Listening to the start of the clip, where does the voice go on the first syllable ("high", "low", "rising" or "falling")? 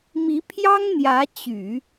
rising